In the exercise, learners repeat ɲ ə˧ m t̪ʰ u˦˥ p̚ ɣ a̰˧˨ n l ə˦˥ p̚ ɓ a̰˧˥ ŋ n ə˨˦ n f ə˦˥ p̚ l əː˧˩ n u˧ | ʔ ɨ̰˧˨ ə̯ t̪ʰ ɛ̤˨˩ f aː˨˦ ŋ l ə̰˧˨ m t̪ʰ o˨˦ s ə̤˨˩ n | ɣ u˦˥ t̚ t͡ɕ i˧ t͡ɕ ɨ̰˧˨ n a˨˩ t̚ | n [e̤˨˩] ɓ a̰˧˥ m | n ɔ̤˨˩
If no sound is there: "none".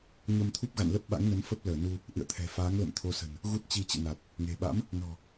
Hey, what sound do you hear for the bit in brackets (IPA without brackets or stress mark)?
e̤˨˩